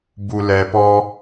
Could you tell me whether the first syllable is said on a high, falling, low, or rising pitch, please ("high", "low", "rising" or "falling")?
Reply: low